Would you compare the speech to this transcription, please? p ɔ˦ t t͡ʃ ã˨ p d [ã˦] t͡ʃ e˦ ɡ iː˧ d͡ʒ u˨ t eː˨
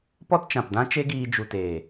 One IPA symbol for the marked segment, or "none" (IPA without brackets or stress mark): ã˦